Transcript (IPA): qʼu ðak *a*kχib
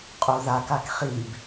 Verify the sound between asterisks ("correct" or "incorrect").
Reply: correct